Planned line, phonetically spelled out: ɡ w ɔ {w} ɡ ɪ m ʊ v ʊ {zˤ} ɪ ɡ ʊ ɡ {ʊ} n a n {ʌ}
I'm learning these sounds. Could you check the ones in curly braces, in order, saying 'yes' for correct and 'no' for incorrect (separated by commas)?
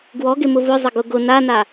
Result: no, yes, yes, no